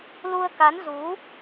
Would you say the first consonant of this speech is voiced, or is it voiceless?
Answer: voiced